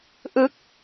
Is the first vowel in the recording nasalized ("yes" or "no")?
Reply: no